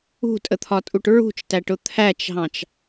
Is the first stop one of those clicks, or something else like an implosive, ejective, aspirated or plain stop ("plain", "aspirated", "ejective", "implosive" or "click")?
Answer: ejective